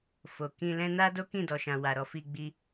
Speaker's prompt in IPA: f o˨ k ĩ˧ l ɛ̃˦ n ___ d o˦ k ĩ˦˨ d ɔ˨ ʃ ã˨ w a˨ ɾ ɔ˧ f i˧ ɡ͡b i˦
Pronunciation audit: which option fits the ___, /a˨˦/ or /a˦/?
a˦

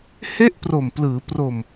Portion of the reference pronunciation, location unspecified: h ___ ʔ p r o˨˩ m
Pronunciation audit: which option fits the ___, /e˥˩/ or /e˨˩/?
e˥˩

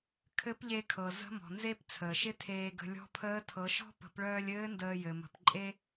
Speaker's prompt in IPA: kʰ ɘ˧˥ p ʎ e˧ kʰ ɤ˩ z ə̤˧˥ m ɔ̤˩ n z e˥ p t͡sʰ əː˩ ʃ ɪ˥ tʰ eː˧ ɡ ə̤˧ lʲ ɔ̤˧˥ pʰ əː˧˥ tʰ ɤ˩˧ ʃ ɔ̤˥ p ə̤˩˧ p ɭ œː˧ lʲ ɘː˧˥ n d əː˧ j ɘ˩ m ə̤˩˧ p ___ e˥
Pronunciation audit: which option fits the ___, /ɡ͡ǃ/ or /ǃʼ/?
ǃʼ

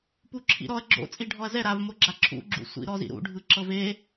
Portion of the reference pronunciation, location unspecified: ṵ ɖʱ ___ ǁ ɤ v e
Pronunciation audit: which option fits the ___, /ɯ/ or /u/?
ɯ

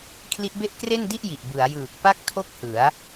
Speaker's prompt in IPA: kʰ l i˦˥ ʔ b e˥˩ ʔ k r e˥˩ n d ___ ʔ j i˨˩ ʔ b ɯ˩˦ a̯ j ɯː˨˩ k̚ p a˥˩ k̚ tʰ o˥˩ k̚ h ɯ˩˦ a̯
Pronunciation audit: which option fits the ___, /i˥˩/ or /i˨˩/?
i˥˩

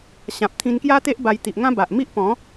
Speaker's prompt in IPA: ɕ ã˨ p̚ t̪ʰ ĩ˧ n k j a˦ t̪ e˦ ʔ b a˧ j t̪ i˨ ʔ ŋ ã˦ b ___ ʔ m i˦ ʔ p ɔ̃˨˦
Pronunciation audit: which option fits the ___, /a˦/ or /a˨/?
a˨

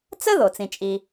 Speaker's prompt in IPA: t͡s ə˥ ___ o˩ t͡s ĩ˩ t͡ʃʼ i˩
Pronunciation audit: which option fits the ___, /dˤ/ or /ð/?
ð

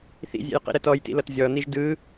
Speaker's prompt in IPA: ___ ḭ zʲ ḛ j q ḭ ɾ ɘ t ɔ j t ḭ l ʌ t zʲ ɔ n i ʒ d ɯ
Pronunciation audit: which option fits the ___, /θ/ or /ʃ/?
θ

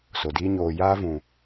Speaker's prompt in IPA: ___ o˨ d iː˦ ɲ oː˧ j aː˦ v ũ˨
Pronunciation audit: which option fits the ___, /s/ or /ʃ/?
s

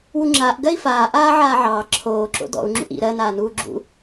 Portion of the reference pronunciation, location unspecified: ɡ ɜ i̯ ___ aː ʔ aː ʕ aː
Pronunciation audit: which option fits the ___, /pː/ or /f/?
f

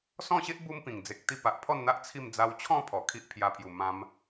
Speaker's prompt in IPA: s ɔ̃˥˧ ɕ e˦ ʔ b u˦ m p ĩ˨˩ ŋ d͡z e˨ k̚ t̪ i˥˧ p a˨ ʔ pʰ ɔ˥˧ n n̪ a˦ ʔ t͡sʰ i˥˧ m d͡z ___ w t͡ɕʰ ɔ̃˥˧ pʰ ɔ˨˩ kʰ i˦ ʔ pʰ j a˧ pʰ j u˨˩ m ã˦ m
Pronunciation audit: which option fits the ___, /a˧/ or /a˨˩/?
a˧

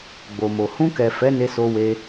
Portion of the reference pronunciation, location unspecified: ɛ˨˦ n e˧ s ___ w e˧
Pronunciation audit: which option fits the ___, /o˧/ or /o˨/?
o˧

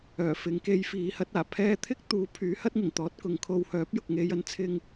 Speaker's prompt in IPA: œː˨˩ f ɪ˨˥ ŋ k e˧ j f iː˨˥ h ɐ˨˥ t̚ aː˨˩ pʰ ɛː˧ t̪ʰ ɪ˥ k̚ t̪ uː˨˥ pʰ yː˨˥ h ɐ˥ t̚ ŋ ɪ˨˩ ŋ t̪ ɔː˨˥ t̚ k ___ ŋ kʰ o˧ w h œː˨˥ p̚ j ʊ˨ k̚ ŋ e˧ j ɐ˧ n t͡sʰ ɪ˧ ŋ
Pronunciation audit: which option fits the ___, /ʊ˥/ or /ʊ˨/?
ʊ˨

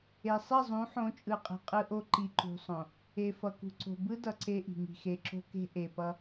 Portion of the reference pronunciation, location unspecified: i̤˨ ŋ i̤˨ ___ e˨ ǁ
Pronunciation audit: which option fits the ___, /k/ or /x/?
x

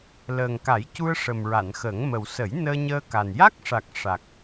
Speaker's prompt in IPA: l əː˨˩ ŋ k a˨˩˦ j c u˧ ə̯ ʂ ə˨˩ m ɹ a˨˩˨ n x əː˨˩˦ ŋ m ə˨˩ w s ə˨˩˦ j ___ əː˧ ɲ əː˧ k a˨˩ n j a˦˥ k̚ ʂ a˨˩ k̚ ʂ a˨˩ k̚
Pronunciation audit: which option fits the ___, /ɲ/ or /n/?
n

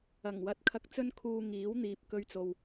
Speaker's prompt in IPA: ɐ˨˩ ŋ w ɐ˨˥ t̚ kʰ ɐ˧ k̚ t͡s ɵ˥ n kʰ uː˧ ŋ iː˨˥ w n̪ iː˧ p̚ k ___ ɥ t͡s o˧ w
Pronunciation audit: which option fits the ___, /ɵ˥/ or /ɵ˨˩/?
ɵ˥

